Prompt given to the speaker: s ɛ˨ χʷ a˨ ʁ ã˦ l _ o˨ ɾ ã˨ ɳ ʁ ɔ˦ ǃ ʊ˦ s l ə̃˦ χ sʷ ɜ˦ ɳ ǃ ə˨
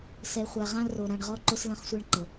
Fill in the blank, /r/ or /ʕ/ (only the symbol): r